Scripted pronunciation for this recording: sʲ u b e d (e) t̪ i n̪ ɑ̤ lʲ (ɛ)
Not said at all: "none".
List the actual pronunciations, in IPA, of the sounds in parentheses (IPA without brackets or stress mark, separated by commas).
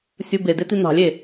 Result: e, e